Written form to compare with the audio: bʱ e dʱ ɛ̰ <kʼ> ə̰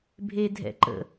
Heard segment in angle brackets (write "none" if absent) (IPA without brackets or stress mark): ǃ